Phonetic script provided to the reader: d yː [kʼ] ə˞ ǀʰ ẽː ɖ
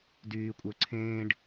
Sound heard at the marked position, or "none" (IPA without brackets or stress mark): kʷʼ